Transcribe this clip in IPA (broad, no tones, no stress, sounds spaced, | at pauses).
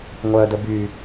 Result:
ŋʷ œ d ə b y